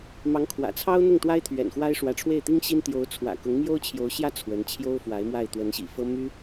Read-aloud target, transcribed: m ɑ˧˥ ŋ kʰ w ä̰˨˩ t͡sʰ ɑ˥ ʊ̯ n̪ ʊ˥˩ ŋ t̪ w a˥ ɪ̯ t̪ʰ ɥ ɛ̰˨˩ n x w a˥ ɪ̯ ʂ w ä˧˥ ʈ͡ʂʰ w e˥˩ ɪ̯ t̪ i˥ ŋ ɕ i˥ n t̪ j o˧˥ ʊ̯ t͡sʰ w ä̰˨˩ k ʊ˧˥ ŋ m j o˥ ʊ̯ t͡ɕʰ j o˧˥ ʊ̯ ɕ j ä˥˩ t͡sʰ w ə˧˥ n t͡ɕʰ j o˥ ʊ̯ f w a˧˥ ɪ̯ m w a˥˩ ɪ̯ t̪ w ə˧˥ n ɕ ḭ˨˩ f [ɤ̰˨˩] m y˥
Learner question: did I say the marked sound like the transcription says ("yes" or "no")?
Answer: no